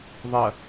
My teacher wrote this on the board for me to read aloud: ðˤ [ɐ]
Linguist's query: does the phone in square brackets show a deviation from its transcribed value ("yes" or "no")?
no